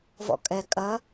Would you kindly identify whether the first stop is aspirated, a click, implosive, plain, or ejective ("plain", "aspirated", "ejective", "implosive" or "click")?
ejective